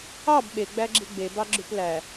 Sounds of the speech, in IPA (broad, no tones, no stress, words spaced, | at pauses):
ɑb ɓeɡ͡bæɡ͡ǁi ɡ͡bebɑɡ͡ǁʉp læ